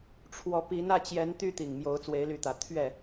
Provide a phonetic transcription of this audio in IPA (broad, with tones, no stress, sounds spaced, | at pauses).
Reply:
ʈ͡ʂʰ w ɔ˨˦ p i˨˦ n ä˥˨ t͡ɕ j ɛ˨˦ n t̪ y˦ t̪ i˨˩ ŋ m j o˨˦ ʊ̯ t͡s w e˨˦ ɪ̯ l y˨˦ t̪ ä˨˩ t̪ʰ ɥ ɛ˥˨